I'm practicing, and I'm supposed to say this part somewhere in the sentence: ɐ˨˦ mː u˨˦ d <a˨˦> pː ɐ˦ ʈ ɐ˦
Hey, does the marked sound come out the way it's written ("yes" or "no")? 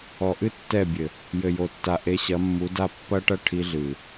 no